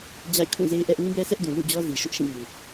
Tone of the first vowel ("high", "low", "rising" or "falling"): falling